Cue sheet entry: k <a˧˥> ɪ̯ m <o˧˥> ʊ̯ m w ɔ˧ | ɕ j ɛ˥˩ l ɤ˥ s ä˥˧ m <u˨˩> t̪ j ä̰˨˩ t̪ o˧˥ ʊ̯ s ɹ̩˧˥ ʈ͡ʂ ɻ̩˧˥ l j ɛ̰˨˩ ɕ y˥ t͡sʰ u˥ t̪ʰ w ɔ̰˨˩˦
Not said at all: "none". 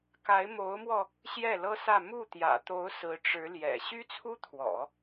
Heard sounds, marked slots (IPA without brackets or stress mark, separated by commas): a˧˥, o˧˥, u˥˩